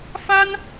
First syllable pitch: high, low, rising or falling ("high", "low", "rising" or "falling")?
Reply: high